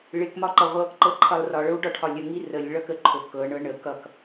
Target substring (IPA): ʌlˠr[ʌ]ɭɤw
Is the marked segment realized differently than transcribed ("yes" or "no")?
yes